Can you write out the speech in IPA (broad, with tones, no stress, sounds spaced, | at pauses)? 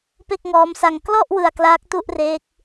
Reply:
p e˥˩ k̚ ŋ ɔː˦˥ m s a˧ ŋ k l ɔ˥˩ ʔ w ɯ˧ a̯ k l aː˦˥ k̚ t u˥˩ ʔ r eː˦˥ k̚